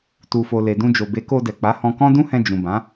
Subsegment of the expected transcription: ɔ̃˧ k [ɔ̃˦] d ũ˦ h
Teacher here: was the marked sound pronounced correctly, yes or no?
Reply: yes